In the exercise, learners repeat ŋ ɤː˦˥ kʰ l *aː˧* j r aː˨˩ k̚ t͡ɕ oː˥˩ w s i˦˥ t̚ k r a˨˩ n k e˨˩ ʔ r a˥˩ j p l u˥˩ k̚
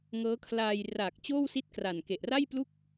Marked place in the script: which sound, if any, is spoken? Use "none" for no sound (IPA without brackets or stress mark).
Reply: aː˧